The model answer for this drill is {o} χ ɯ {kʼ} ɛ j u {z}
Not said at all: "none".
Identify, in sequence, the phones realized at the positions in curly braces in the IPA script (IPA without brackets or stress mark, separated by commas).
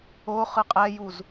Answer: o, qʼ, z